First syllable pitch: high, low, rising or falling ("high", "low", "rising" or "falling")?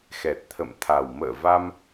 low